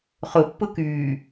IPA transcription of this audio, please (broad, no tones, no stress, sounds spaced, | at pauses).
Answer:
χ ʊ pː ʊ k yː